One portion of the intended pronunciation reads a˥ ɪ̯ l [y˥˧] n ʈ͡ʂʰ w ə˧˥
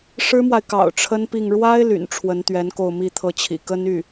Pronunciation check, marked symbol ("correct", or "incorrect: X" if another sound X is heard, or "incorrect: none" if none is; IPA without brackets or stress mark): incorrect: y̰˨˩